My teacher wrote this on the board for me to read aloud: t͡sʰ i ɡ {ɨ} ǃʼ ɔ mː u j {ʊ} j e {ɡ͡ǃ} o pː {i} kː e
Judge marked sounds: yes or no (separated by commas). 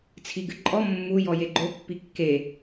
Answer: yes, no, yes, yes